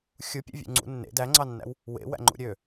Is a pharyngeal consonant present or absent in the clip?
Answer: absent